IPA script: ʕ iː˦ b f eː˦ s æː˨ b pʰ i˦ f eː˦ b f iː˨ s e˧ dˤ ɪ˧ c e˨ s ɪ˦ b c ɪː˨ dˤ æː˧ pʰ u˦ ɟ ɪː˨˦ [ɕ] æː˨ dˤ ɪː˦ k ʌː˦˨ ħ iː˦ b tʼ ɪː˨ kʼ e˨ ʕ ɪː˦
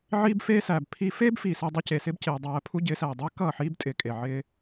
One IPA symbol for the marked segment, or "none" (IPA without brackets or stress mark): s